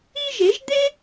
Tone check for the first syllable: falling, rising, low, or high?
high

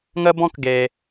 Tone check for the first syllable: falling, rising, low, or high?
high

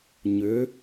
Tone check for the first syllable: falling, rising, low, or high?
rising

